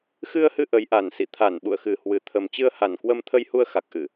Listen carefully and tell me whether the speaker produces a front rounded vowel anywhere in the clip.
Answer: no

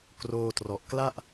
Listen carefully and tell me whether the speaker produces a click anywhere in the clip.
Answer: no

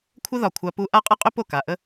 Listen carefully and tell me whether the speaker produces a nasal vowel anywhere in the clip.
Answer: no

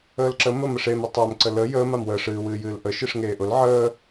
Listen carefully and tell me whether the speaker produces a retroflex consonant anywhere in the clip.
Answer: yes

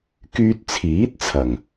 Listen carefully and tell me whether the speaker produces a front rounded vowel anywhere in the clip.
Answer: yes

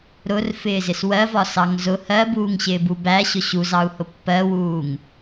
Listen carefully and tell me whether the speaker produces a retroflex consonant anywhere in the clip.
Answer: no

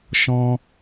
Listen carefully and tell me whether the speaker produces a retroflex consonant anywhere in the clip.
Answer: no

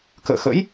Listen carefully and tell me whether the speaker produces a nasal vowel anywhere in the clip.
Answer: no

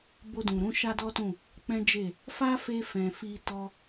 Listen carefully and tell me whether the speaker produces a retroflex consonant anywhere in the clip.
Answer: no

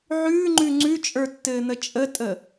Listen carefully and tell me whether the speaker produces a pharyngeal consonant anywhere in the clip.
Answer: yes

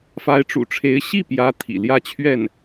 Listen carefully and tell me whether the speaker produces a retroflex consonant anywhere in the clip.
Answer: yes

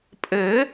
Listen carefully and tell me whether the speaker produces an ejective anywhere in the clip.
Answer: yes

